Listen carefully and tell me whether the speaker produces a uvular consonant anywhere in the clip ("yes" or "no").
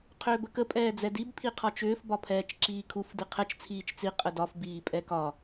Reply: yes